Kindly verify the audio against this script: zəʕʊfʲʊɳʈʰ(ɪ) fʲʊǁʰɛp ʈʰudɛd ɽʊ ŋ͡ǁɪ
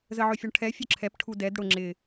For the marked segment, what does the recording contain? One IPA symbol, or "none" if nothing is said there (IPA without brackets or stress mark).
ɛ